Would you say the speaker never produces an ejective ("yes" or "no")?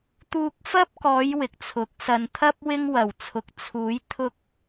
yes